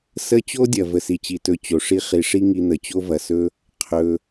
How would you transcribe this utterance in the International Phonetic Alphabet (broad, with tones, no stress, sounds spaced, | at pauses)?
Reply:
s ə˦ t͡ɕ o˥ dʲ ɐ˩ v ə˩ s i˩ t͡ɕ i˩ t ɵ˨ t͡ɕ o˩ ʂ i˦ χ i˩ ʂ i˦ ŋ i˨ n̪ ə˩ t͡ɕ o˥ v ɐ˩ s ɵ˥ | qʰ ɵ˩